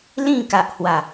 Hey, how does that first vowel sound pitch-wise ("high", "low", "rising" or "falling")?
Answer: falling